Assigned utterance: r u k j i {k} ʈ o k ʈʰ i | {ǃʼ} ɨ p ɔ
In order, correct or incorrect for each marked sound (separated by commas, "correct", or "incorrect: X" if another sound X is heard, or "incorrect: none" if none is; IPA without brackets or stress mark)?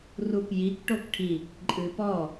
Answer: correct, correct